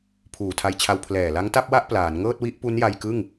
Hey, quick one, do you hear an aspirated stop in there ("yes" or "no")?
yes